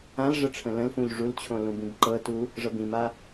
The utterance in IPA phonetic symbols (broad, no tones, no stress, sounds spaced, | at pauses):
ã l ʐ ə ʈ͡ʂʰ ə̃ l ə̃ l f ũ ʎ ʐ u l t͡ɕʰ õ l ũ b ĩ b ǃ ɤ t u | ʐ ɤ b ĩ m a